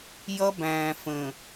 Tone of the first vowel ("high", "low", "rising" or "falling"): high